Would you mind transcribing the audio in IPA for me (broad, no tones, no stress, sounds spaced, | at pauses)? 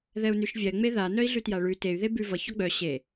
ð ɛ u̯ n ʉ ʃ vʲ ɛ ŋ͡m e ð a n œ i̯ ɮ ʉ t j a ɭ ʉ t e y̯ ð e b ʉ v ʌ ç ɔ ɡ͡b œ ɕ e